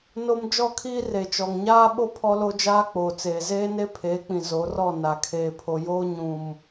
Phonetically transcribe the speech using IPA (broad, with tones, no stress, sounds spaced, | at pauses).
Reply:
n o˦ m d͡ʒ ɔ˦˨ kʰ iː˦ r e˨ t͡ʃ ɔ˨ ŋ ɲ aː˦ ɓ o˦ pʰ ɔ˦ l o˦ d͡ʒ aː˦ k͡p oː˨ t͡s eː˨ z eː˦ n e˦ pʰ eː˨˦ k͡p ĩ˨ z o˨˦ r ɔ˦˨ n a˨ kʰ eː˨ pʰ o˨ j oː˦ ɲ ũ˨ m